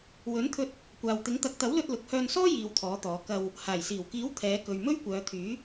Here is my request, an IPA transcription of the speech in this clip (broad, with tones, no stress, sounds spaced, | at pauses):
w ɵ˨˥ n t̪ʰ ɵ˧ t̚ | kʷ aː˨ w t̪ ɪ˨˥ ŋ t̪ ɐ˨˥ k̚ t̪ ɐ˨˥ w l ɵ˧ t̚ l ʊ˨ k̚ h œː˧ n s ɔː˥ j iː˧ w t̪ʰ ɔː˨˥ t̪ ɔː˨˧ k ɐ˧ w | h aː˨˩ j s iː˨˩ w k iː˨˥ w t̪ʰ ɛː˨˧ k ɵ˨ ɥ m ɵ˥ ɥ kʷ œː˨˧ t̪ʰ yː˨˥